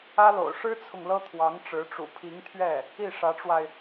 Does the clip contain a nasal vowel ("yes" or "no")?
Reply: no